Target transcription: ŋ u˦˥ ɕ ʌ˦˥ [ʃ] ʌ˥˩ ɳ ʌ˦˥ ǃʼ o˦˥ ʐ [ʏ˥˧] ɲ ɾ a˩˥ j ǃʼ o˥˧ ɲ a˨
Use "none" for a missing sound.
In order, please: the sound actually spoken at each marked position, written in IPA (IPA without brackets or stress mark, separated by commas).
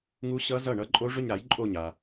z, ʏ˥˧